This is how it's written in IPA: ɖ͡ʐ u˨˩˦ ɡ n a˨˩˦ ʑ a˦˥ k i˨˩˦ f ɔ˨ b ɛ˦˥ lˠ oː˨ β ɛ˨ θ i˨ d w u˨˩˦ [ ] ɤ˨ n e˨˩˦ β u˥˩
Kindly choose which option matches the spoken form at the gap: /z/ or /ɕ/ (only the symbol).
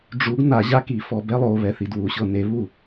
ɕ